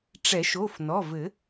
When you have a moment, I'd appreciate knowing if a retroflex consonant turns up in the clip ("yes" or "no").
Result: yes